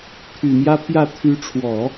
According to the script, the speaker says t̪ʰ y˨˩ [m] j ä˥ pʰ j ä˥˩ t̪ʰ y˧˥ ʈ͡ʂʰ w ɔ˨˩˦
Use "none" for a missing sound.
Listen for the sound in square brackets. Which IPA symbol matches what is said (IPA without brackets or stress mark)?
m